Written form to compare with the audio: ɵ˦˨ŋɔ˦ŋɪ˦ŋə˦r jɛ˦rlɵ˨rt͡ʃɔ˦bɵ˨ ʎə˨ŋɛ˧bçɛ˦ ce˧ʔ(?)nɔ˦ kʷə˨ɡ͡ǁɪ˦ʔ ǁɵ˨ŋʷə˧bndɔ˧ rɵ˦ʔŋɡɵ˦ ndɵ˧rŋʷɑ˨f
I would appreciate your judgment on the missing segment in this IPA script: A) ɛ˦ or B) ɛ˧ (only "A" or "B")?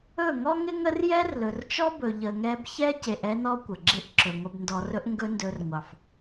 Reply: A